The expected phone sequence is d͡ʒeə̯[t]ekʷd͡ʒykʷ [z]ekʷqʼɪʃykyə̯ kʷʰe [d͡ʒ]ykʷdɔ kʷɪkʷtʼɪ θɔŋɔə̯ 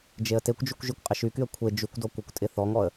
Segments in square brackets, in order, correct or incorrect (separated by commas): correct, incorrect, correct